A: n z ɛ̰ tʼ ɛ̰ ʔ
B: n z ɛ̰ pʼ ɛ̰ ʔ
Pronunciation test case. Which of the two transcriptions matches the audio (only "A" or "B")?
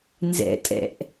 A